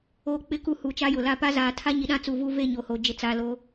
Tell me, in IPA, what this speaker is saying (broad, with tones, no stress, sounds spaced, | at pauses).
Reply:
oː˨ k͡p ɪ˨˦ k u˨ h u˨ t͡ʃ a˦ j ʊ˨ l a˦ p a˦ z aː˨ tʰ a˦ ɲ i˨ ɗ ã˦ t͡s u˨ v u˦ v e˦˨ ɲ o˨ h o˨ d͡ʒ ɪ˨˦ t͡s a˨ l o˦